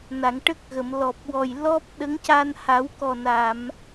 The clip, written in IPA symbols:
n a˨˩˨ ŋ ʈ ə˦˥ k̚ ɣ ə˨˩˨ m l ɔ˨˩ p̚ w ɔ˨˩ j l ɔ˦˥ p̚ ɗ ə˧˥ ŋ c a˧ n h a˨˩˦ w k ɔ˨˩ n a˨˩˨ m

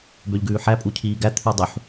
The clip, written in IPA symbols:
b ø ʎ ɡ ʉː ħ æ pʼ u cʰ iː ɡ æ t̪ʰ ʉ dˤ ʉ ħ

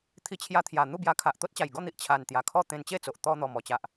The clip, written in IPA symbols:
t̪ʰ i˧ t͡ɕʰ j a˧ t̪ʰ j a˨˩ n̪ u˥˧ b j a˧ kʰ a˨ ʔ t̪ o˦ t̚ t͡ɕ a˨˩ j ɡ ɔ˥˧ n̪ i˨ ʔ t͡ɕʰ a˨˩ n t̪ j a˨˩ kʰ ɔ˥˧ t̪ ẽ˧ n t͡ɕ e˥˧ t͡s o˨ ʔ t̪ ɔ˧ n̪ ɔ˨˩ m ɔ˧ t͡ɕ a˨ ʔ

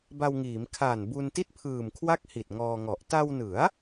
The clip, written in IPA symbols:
b a˧ w ŋ iː˩˦ m kʰ aː˨˩ n b u˧ n t i˥˩ t̚ pʰ ɯː˨˩ m kʰ w a˥˩ k̚ h i˨˩ t̚ ŋ ɔː˧ ŋ ɔ˨˩ ʔ t a˧ w n ɯ˩˦ a̯

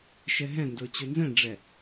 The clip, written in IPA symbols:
ʃ ɛ ɦ ɛ̃ n d o t͡ɕ o n z ɛ̃ ɖ͡ʐ ɛ

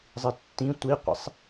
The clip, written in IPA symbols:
zˤ i tː ĩ tʷ i qʷ ḛ sˤ

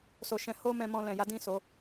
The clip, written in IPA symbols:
s o˧ ʃ ɛ̃˧ h o˦ m ɛ̃˧ m ɔ̃˧ l ɛ̃˨ j a˨˦ d ĩ˦˨ s o˨˦

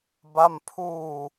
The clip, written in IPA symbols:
b a˥˩ m pʰ uː˧

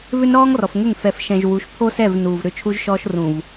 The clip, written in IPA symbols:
v ʏ˦ n ɾ ɔː˦ ŋ r ɔ˨ f ŋ ʏ˦˨ ŋ f ɛ˨ f ʃ ɛ̃˨ ʒ w u˨˦ ʃ pʰ o˦ s ɛ˦˨ v n uː˨ v ɾ ʏ˦˨ t͡ʃʰ u˦ ʒ ʃ ɔː˦ ʃ r ũ˨ v

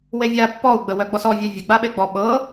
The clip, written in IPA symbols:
w e vʲ a pː ɔ u̯ ɡ͡b ə w œ ɡ͡b ɔ s ɔ vʲ œ vʲ ə ɡ͡b a ɓ e ɡ͡b ɔ ɓ ɤ

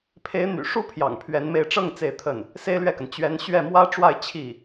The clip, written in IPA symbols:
pʰ e˧˥ ɪ̯ n̪ y̰˨˩ ʂ u˥ pʰ j ɑ̰˨˩ ŋ pʰ ɥ ɛ˧˥ n m e˥˧ ɪ̯ ʈ͡ʂ ɤ˥˧ ŋ t͡s e˥˧ ɪ̯ t̪ʰ ə˥˩ n | s e˥ ɪ̯ l ɥ ɛ˥˩ k ə˩ n t͡ɕ ɥ ɛ˧˥ n ɕ ɥ ɛ˥˩ m w ä˥ ʈ͡ʂ w a˥˧ ɪ̯ t͡ɕʰ i˥˩

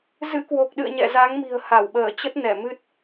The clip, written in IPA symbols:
z ɨ̰˧˥ k w o˨˩ k̚ ɗ ɨ̰˧˨ ə̯ ɲ ɛ̰˧˨ z a˨˦ ŋ m i̤˨˩ ə̯ h a˧˩ w ɓ əː˧˩ t͡ɕ ə˦˥ t̚ n ɛ˧˩ m ɨ˦˥ t̚

